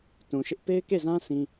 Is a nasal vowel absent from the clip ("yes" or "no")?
no